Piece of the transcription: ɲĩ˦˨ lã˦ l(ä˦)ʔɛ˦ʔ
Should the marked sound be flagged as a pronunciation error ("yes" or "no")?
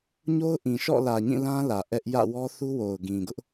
yes